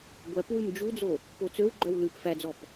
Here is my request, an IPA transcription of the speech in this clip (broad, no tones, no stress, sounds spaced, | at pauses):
ɡʷ æ p w ʉ m d͡ʒ u d͡z o | p o t͡s ø w ɡ͡ǃ œ w l ʉ p f æ d͡z ɔ p